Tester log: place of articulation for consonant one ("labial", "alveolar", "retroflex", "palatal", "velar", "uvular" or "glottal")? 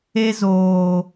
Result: alveolar